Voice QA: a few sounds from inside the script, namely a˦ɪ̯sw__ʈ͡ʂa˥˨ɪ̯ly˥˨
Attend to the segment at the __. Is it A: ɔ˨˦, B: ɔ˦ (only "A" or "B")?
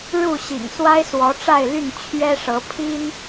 A